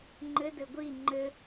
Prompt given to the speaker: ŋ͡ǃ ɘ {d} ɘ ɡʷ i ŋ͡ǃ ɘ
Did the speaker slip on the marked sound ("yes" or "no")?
no